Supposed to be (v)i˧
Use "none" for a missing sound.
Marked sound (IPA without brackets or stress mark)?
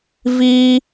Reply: v